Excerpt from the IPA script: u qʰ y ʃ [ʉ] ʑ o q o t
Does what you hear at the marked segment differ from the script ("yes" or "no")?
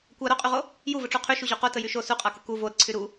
yes